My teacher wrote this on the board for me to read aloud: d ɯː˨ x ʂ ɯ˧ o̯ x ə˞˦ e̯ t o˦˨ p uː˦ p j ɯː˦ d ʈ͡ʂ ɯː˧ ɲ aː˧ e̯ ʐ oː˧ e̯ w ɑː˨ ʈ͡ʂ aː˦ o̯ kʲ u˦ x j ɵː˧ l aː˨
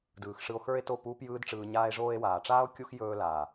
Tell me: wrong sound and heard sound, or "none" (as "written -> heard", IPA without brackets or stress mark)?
ɑː˨ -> aː˨